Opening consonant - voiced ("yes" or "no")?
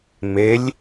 yes